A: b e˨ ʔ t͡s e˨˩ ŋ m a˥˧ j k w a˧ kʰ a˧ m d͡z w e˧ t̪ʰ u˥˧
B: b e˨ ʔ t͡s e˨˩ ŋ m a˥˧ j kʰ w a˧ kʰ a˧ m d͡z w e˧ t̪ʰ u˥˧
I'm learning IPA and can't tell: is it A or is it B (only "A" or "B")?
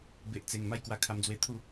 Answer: A